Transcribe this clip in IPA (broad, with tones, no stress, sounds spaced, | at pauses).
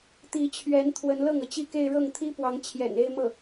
t̪ i˧˥ t͡ɕʰ ɥ ɛ˧˥ n t̪ʰ w ə˧˥ n l ɤ˥˩ ŋ ɤ˩ t͡ɕ i˥˧ k e˥˧ ɪ̯ ɻ ɤ˥˩ ŋ t̪ʰ i˥ p w ɑ˧˥ ŋ t͡ɕʰ j ɛ̰˨˩ n e˥˧ ɪ̯ m ɤ˥˩